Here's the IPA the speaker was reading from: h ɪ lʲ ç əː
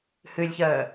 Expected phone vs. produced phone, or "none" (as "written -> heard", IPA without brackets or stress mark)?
ɪ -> ɨ